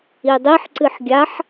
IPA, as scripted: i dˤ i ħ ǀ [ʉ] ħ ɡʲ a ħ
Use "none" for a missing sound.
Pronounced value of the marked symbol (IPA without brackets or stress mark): ɨ